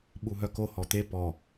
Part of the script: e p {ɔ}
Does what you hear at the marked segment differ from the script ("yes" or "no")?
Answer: no